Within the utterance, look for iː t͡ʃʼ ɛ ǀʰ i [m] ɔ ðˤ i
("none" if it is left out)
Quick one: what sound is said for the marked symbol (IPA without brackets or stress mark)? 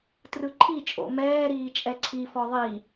f